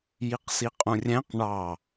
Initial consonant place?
palatal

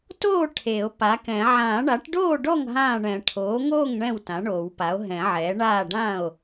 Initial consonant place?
alveolar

